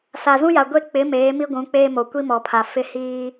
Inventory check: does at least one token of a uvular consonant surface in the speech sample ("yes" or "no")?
no